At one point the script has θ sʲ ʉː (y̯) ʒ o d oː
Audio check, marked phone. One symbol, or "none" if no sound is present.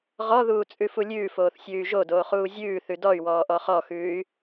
y̯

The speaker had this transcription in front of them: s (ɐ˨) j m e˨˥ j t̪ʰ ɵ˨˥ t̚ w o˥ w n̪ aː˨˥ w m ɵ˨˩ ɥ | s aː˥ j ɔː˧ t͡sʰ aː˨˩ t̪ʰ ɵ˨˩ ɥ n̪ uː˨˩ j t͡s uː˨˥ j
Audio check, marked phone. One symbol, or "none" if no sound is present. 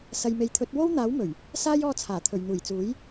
ɐ˨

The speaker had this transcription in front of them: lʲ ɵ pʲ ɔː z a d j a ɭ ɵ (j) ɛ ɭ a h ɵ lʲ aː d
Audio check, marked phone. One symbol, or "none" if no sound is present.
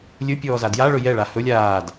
j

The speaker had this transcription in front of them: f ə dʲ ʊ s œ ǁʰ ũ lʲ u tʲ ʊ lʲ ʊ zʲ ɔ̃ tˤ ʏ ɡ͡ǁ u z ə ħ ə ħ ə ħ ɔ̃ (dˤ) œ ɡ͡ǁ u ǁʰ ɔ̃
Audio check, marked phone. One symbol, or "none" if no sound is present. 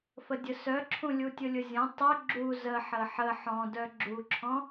d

